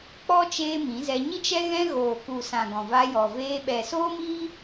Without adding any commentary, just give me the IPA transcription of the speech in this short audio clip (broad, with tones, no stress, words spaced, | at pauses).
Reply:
k͡pɔ˦ t͡ʃeː˦mĩ˨˦zɛ˧ ɲi˦t͡ʃɛ˦ɣɛ̃˦ ɣoː˨ku˨sã˨ ɡɔ̃˨va˧jɔ˨veː˧ ɓɛ˨soː˦miː˦